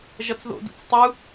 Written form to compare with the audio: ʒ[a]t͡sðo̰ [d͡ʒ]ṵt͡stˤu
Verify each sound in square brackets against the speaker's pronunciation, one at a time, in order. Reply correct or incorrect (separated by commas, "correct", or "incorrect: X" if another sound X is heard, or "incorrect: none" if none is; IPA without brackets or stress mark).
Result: incorrect: ʌ, incorrect: d